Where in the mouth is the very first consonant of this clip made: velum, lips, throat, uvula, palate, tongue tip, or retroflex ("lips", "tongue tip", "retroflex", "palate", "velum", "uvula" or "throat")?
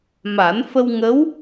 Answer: lips